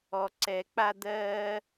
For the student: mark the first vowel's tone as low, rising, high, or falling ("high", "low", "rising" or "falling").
low